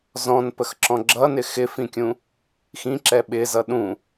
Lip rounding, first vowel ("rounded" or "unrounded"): rounded